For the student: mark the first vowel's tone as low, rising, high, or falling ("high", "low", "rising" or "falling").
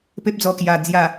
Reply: high